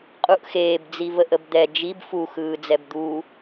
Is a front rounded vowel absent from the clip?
yes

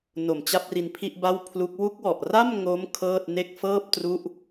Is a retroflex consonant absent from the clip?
yes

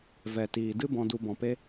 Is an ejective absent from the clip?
yes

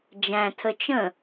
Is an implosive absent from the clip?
yes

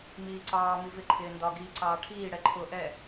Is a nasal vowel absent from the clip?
yes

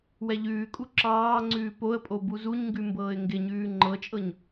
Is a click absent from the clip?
no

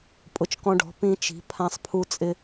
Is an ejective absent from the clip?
no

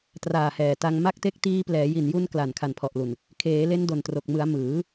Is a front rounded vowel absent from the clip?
yes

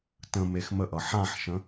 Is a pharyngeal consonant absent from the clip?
no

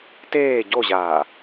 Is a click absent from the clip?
yes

